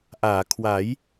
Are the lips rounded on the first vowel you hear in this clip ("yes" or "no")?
no